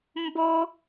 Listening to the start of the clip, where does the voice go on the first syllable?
high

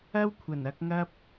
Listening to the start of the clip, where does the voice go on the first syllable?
high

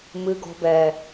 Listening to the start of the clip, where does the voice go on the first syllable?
low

